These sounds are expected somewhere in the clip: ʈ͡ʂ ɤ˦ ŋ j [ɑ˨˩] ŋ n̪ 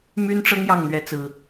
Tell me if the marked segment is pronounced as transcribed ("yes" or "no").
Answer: no